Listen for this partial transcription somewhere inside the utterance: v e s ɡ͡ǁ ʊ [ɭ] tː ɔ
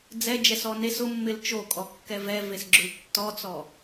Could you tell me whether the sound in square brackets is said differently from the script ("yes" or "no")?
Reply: yes